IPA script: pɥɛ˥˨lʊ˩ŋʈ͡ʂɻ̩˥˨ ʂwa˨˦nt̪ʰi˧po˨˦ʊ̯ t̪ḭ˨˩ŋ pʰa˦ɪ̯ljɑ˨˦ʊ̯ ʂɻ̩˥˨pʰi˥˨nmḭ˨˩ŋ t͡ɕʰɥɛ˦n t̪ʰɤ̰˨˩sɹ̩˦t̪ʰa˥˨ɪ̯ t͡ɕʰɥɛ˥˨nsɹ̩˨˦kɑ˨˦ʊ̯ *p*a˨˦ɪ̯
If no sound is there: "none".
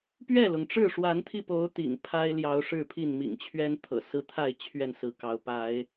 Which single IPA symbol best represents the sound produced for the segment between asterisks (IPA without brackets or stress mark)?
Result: p